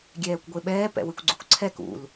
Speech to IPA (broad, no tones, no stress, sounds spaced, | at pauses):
ɡʲ ɛː kʷ ɡʷ e ɓ ɛː p ɛ̰ w ɨ kʷ ɡ͡ǀ u kʷ ǀʰ ɛ k ṵ l